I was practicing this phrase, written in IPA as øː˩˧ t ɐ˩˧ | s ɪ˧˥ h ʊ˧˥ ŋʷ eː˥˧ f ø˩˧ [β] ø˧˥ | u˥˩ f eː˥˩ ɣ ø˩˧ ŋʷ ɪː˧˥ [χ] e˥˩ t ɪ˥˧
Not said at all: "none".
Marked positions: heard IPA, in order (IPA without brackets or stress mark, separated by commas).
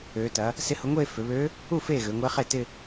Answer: β, χ